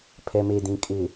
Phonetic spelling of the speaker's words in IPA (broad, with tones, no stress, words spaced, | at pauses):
pʰɛ˨me˨dĩ˨ kʼɪ˨